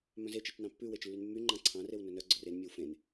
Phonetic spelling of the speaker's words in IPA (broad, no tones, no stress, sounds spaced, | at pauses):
m œ̃ z e t͡ʃ i t͡ʃ n ɑ̃ pː ʉ w e t͡ʃ lː y n mː y ŋ͡ǃ ɑ̃ ǀʰ ɑ̃ r e w n ɵ n œ ɡ͡ǀ ɵ r e n mʲ e w f ẽ n